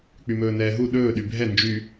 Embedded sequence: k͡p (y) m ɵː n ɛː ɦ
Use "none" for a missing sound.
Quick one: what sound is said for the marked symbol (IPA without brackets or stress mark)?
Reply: y